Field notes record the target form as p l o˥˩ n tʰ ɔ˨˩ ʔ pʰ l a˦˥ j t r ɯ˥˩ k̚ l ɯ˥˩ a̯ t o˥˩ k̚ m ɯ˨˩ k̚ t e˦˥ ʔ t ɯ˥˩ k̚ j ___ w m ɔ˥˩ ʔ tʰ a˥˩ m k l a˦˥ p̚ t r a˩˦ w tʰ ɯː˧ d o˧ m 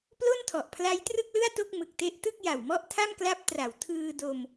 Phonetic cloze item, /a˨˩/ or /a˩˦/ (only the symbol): a˨˩